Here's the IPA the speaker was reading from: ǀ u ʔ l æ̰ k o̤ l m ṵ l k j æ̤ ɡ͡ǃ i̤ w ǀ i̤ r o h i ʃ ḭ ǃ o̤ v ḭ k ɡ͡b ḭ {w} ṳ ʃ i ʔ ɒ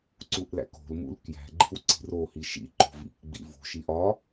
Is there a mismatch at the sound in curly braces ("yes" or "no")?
yes